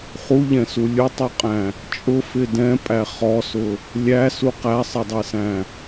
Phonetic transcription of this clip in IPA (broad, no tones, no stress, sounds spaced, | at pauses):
χ u ʎ ɛ̃ s u lʲ ʊ tˤ u qʼ æ̃ | t͡ʃʼ ʊ f ɪ d ɛ̃ pʼ æ χ ɔ s ʊ | lʲ æ s u q æ sˤ ɛ dˤ ɛ s æ̃